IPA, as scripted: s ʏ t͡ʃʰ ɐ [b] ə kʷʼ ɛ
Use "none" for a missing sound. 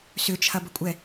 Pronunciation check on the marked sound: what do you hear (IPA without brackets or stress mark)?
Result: b